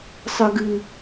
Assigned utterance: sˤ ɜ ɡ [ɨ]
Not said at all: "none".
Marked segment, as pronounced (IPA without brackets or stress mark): ɨ